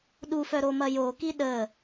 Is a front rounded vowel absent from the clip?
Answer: no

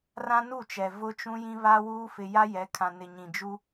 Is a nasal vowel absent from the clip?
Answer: no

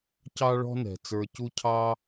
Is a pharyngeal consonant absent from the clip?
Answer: yes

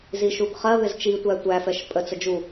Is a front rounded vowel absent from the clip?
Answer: yes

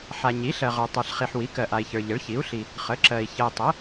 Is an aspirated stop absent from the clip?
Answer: yes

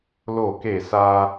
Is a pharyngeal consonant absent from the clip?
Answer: yes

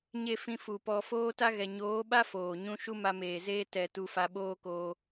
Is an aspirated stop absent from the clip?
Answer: yes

